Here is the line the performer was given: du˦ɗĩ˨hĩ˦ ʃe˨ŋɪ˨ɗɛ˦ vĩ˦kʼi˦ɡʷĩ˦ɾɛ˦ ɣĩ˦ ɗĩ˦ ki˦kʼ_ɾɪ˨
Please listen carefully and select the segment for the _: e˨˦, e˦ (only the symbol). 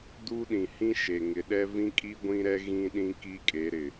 e˨˦